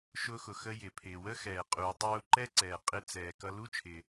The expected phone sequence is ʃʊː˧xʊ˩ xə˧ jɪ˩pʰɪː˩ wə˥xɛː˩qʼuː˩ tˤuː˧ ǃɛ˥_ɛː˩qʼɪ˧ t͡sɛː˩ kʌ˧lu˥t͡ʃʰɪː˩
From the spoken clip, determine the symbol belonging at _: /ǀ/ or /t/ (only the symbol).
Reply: ǀ